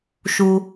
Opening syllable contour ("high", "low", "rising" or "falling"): high